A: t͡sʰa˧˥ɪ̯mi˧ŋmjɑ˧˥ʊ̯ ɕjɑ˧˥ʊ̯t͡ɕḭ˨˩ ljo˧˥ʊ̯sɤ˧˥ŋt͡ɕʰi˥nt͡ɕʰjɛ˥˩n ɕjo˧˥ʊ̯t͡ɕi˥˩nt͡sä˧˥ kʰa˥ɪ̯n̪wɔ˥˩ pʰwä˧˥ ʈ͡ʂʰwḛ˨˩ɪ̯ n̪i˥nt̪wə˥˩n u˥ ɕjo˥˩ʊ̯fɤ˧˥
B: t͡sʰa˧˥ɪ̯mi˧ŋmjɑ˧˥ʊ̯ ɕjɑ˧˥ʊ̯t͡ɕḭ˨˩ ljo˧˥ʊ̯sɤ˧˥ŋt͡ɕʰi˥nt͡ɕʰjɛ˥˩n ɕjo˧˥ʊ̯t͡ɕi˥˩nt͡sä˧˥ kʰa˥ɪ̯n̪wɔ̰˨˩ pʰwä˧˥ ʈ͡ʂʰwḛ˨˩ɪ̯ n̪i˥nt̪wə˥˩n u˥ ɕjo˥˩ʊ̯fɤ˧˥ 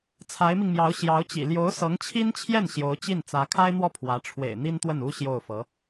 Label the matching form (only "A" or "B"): A